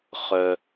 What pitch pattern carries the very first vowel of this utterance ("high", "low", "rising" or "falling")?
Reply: low